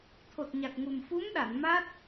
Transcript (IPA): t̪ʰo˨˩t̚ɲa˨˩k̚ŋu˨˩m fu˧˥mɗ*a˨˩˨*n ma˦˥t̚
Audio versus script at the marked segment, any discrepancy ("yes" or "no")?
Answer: no